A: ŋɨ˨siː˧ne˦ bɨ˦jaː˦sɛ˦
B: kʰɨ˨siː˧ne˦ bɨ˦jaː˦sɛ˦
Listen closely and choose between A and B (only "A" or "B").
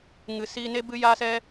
A